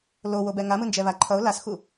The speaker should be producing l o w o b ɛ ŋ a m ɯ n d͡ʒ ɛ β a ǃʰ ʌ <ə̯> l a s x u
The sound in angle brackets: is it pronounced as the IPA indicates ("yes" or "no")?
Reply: no